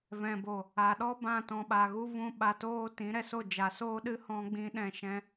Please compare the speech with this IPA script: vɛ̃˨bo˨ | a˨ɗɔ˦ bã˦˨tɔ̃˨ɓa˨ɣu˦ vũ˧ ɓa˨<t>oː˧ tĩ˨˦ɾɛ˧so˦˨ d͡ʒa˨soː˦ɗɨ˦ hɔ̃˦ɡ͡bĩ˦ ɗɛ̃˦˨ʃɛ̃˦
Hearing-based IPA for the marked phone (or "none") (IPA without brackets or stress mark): t